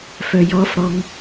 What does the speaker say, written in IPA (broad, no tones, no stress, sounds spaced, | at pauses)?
f œ j ɔ f ɽ ɔ ŋ